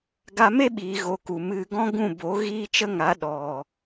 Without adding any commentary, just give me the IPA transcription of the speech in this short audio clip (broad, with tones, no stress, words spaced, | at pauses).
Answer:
ɡa˧me˦ɓiː˨ɣo˨ ku˨mɨ˧ ɡɔ̃˦ ɡũ˦˨bo˨˦ ɣiː˦t͡ʃə˦ŋa˨˦ ɗɔ˨